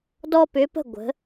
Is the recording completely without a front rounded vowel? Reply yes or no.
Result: no